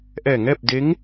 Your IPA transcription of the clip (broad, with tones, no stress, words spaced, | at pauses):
ʔɛː˧˩ŋɛː˥˨p̚de˧˥ŋ